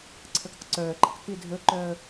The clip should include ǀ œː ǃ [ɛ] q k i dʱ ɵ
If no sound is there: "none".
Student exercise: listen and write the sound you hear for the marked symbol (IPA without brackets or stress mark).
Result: ə